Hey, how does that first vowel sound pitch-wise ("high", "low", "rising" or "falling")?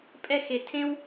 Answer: falling